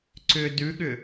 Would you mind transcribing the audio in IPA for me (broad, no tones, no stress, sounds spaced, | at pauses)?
ǀ ʏ d ʉ ɠ ʏ